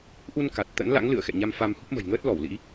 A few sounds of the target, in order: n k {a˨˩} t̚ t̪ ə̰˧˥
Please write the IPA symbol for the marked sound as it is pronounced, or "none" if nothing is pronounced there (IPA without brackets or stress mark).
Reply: a˨˩